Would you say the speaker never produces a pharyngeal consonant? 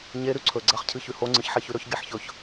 no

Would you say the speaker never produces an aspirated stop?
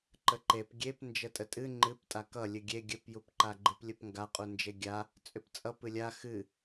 yes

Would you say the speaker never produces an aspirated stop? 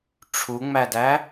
no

